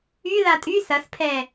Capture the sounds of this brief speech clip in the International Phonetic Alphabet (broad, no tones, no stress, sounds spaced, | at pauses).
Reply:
y ð a tʼ y s ɐ s pʰ ɛ